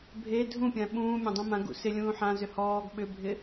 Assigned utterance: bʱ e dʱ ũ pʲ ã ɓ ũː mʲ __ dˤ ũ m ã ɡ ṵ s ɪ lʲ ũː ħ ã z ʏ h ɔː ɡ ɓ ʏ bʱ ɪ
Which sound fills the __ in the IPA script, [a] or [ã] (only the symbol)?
ã